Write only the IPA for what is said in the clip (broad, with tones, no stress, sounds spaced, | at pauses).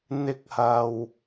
n̪ ɪ˧ k̚ h ɐ˨ w